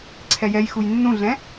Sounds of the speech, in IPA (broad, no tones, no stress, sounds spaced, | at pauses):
ǀʰ ɛ j ɛ j x u j nː ũ ɮ ɛ̃